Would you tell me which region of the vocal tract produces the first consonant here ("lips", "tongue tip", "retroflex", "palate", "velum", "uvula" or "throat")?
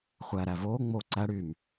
uvula